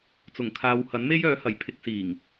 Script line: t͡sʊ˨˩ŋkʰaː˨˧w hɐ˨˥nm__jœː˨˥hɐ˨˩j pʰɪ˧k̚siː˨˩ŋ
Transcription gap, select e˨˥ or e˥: e˥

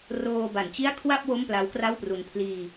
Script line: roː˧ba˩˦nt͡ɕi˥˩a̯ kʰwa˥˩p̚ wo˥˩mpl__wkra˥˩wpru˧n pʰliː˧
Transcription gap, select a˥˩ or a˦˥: a˦˥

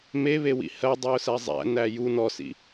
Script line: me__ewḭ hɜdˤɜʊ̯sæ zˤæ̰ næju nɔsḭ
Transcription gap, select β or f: β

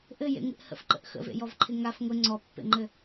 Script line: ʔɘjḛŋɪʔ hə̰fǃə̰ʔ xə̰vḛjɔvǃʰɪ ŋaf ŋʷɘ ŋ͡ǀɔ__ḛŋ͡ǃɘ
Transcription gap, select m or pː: pː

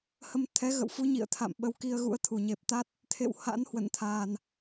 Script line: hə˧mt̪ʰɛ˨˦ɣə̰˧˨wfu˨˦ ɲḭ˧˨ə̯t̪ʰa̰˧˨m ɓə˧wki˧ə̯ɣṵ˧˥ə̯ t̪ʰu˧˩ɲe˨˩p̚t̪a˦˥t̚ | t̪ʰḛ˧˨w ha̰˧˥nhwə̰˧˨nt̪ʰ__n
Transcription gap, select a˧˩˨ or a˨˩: a˨˩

